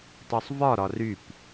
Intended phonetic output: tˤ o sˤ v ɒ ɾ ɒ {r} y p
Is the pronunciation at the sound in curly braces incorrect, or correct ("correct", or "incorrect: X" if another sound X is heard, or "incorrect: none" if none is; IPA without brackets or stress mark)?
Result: correct